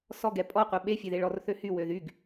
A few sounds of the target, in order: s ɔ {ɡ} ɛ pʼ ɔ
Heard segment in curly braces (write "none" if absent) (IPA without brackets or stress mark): ɡ